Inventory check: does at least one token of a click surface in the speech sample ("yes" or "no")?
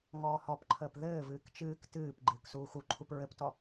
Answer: yes